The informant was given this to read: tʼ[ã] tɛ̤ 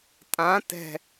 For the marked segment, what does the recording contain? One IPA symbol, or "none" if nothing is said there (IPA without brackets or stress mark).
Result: ã